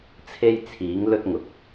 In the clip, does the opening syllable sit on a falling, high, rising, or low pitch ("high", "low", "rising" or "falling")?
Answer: high